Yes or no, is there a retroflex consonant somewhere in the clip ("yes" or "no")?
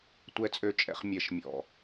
no